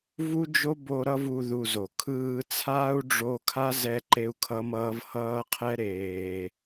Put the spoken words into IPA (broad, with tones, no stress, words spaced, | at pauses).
vu˦d͡ʒo˦bo˧ ɾʌ˦vu˧ ðu˧zo˨ kʰɯː˧t͡sʰaː˦u̯ ɖ͡ʐo˦ kʰa˦ zɛ˦ǃe˦u̯kʰʌ˦mʌː˦v hʌː˦qʰɛ˦ ɾeː˧